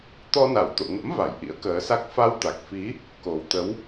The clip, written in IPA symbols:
t̪ ɔ˧ n a˧˩ w t̪ o̰˧˨ ŋ ə̰˧˥ m v a˧˩ j ʔ ḭ˧˥ ə̯ k əː˨˦ s a˦˥ k̚ f a˧ w t̪ a˨˩ k̚ f i˨˦ | k o˨˩ w t̪ ə˨˦ w

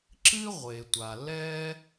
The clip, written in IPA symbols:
ǁ ɨ˦ ʁʷ e˨ tʷ a˨ l ɛ˦

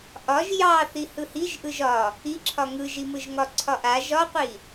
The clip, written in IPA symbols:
ʔ ɒ ʒ j ɑ θ i h ɯ h i ʒ ʔ ɯ ʒ ɒ | i ǁʰ ɒ ŋ ɯ ʒ i m ɯ ʒ ŋ ɒ ǀʰ ɒ ʔ a ʒ ɒ qʷ i

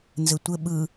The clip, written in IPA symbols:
n z ɘ tʷ ɘ ɓ ɯ

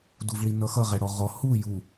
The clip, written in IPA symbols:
d u v ɭ i n ʌ x ʌ ʁ ɛ ɽ ɔ ʁ ɔ h u j u

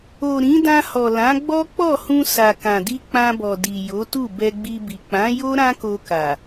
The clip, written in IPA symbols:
o˨ ɾ ĩ˨˦ d ã˧ h ɔ˨ l ã˨˦ ɡ͡b ɔ˦ k͡p ɔ˦˨ h ũ˧ s a˨ k ã˨ d i˧ k͡p ã˧ b ɔ˨ d i˨ j o˨˦ t u˦˨ b ɛ˧ ɡ͡b i˧ b i˨ k͡p ã˨˦ j o˦ ɾ ã˦ k o˧ k a˨

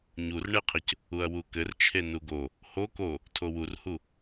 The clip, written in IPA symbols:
ɲ u r ɳ e qʰ ɘ c | u ɐ̯ w u k ɘ r t͡ʃʰ e n u ɡ o | h o k o | tʰ o w u r h u

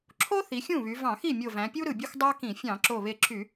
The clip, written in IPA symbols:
ǁʰ o˥ θ i˩˧ xʲ ũ˥˩ β y˩˧ v ɑ̃˧˩˧ x i˥˩ mʲ o˧˩ v æ̃˩˧ pʲ u˥ ɾ ɯ˧˩ bʲ u˥ x dˤ æ˥ k ĩ˧˩˧ fʲ ɑ̃˧˩˧ ǁ o˧˩ β e˧˩ ǁʰ y˧˩˧

